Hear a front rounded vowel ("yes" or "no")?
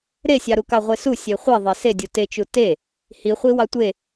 no